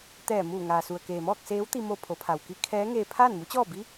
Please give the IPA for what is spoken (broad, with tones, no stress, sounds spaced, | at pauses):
t̪ ɛː˧˩ m uː˧˩ ŋ aː˩ s u˩ ə̯ k eː˩ m ɔː˥˨ k̚ s eː˧˥ w t̪ i˧ m o˧ pʰ o˩˧ pʰ a˩ w k i˧˥ kʰ ɛː˧˥ ŋ eː˧ pʰ aː˥˨ n m u˧˥ t͡ɕ ɔː˥˨ b i˧˥